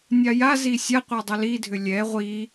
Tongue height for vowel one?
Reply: low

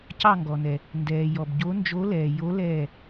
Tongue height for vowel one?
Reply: low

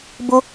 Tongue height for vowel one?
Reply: high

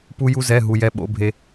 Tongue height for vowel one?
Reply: high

